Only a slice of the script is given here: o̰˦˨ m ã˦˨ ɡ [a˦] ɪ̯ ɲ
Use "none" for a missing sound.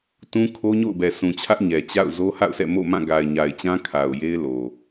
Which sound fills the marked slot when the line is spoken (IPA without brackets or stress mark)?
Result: a˨